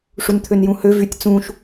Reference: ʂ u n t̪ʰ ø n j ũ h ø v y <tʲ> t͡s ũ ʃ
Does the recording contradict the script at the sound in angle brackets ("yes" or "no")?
no